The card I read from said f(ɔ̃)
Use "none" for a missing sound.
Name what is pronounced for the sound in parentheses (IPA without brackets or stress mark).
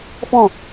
ɔ̃